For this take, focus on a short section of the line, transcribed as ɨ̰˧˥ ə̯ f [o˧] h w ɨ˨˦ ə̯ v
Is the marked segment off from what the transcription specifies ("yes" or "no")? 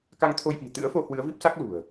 no